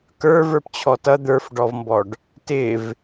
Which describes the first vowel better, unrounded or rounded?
unrounded